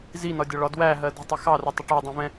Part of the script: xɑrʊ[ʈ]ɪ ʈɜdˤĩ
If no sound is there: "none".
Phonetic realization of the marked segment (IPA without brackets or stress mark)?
tˤ